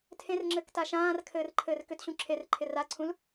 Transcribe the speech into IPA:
tʰ ẽ r ŋ͡ǁ ɘː k t a ʃ ãː r kʰ ɘː r ǃʰ ɘː r k ʏ t ɕ ũ ǁʰ e r ǃʰ ɪ r a ǀʰ ũ l

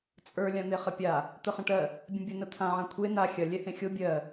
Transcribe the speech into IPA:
t͡sʼ ə˞ lʲ ã n̪ e χ ə pʲ a | t̪ ə χ ə̃ ʈ ɜ | bʲ ə̃ bʲ ə n ə t̪ʰ ã ʕ ã kʷʰ e n a xʲ ɐ lʲ ɛ h ẽ xʲ o bʲ ɜ

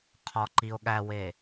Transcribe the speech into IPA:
qʰ ɒ ǃ i o̯ ɠ æ w e

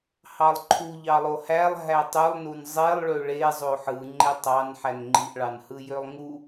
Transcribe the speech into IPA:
h ɑ lˠ ǃʰ u ʎ ɑ lˠ o h æ lˠ ɦ æ tˤ y lˠ n u n zˤ e lˠ ɭ ø ɭ e zˤ o ħ ɯ ŋ͡ǃ e tˤ ɑ n ħ æ n ŋ͡ǃ i ʔ ɭ ɑ n h ɯ j ø lˠ ŋ u

